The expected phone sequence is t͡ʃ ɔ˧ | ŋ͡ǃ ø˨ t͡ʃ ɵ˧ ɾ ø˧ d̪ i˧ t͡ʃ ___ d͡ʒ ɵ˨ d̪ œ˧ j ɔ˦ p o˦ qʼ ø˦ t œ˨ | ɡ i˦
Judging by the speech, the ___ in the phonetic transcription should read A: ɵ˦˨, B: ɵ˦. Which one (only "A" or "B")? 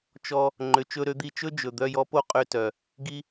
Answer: B